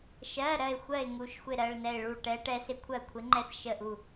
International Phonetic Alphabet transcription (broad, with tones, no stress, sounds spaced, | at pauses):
ʃ ɜ˩˧˩ ɾ ɜ˥˩ ɪ̯ xʷ ɜ˥˩ ɪ̯ ŋ u˩˧˩ ʃ xʷ ɪ˥˩ ɾ ɜ˩˧˩ ɭ n ɛ˥˩ ɪ̯ ɭ u˥˩ ʈ ɛ˧˥ ʈ ɛ˧˥ s ɪ˥˩ kʷʰ ɜ˥˩ kʷʰ ɪ˧˥ ŋ͡ǃ ɛ˥˩ s ʃ ə˥˩ ʔ u˥˩